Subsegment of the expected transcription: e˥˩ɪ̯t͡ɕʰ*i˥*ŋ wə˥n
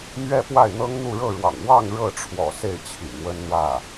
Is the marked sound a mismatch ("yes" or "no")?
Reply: yes